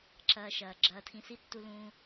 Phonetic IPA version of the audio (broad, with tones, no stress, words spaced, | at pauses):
ǁɐː˧ʃɐː˨ ɡ͡ǁɐː˧tʰĩ˧ si˦tːu˧lũː˧